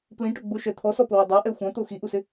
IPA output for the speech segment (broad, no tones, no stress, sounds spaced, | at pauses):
p l ĩ ʈ ʊ ɡ͡b ʊ ʃ ɛ t̪ʰ ɔ s ɔ p ʊ w ə dˤ a ʔ ɛ xʷ ã t̪ o x i ʔ u s ɪ